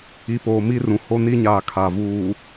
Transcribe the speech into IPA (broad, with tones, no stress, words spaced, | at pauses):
i˨poː˨mi˦rũ˨ ho˦ni˦ɲaː˨ kʰa˨vuː˨